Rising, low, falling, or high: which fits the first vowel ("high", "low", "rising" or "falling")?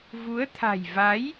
rising